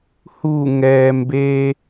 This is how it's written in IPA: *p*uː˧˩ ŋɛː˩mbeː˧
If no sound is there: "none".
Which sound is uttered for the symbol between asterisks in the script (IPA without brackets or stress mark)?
h